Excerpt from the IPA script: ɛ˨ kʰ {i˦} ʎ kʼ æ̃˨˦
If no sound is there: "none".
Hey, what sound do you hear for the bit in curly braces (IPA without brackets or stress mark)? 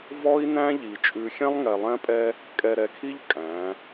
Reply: i˦